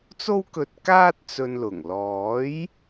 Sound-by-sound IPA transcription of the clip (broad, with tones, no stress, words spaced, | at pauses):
t͡so˥wkɵ˧t̚kaː˥t̚ t͡sɵ˧nlʊ˨˩ŋ lɔː˨˥j